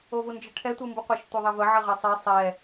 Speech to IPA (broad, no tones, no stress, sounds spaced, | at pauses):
o v u n d͡ʒ ə ʈʰ ɛ tʷ ɯ m b u qʷ ɛ ʃ tʷ e ðˤ ɛ v ə ʕ ə ʁ e sˤ e sˤ ɛ